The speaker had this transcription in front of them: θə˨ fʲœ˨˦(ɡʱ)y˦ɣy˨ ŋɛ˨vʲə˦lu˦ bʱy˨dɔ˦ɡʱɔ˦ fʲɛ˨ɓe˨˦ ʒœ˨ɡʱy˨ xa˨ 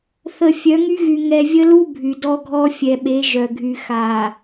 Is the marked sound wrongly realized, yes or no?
yes